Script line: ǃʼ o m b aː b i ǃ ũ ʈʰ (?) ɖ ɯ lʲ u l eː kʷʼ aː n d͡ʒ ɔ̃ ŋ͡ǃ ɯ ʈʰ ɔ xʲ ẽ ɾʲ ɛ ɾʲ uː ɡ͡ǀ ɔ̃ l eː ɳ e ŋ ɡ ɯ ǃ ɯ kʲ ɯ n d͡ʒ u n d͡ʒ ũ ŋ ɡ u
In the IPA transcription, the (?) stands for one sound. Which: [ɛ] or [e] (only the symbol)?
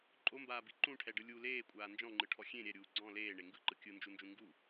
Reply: ɛ